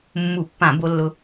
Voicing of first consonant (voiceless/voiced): voiced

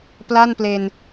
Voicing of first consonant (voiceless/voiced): voiceless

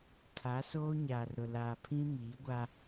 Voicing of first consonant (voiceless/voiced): voiceless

